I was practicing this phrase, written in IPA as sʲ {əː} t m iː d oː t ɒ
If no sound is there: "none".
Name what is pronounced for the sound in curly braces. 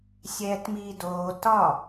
ɛː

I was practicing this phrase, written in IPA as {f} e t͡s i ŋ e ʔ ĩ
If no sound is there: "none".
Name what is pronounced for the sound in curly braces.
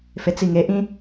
f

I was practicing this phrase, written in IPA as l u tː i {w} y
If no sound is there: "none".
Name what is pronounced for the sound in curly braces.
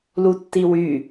w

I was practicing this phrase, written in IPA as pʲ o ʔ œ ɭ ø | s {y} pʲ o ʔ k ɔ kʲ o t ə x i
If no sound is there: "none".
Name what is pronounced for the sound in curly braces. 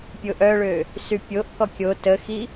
y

